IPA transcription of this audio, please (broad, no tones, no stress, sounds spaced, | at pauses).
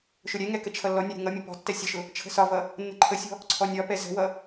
ʃ ʊ ɾʲ ɛ ŋ ɛ k ə t͡ʃʰ ʌ lː ɔ nʲ ɔ ɾʲ ə̤ ŋ ʌ mʲ ʊ p ɔ̤ tː ɛ sʲ ə ʃ ʊ | t͡ʃʰ ə̤ s ɒ v ʌ | nː ə̤ ǃʰ ə sʲ ɔ̤ | ǀʰ ɔ nʲ ɒ p ɛ z ə̤ w ʌ